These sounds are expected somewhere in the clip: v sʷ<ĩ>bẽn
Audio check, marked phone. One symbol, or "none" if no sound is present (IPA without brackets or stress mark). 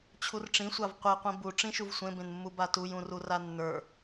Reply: ẽ